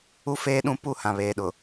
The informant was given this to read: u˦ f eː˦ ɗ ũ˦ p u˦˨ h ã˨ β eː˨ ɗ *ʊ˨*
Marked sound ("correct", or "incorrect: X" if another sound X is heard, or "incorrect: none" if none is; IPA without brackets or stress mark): correct